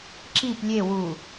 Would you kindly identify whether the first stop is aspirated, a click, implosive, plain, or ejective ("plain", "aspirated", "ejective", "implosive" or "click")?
click